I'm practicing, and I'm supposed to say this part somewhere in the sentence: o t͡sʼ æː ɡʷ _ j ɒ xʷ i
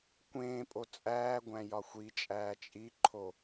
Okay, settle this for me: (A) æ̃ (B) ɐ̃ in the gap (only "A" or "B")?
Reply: A